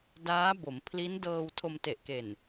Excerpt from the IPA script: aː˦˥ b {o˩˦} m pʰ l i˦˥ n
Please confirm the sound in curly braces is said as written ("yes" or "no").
yes